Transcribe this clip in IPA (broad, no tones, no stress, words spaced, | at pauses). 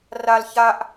ral çaʔ